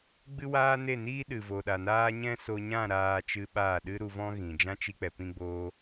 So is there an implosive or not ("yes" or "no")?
yes